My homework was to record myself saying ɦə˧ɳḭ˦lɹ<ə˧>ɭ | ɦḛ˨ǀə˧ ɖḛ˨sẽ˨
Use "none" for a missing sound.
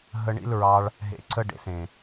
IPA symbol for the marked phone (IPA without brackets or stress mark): ɑ˧